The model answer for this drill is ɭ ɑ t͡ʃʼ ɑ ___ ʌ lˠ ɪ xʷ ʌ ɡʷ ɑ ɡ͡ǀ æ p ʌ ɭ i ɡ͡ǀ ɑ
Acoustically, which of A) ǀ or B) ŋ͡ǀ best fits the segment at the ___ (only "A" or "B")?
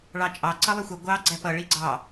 A